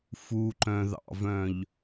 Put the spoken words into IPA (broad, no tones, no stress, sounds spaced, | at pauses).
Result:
f u ǃ œ̃ ð ɑ̰ v œ̃ ʎ